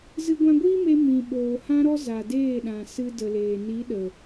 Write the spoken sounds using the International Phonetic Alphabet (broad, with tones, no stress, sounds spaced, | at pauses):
z ɨ˧ ɡʷ ã˧ ɡʷ iː˦ m e˧ m ĩ˨ ɓ oː˨ h ã˧ ɾ ɔ˧ z a˨ d eː˦˨ ɗ ã˨ s ɨ˧ d ə˨ l eː˨ n i˨˦ ɗ ə˨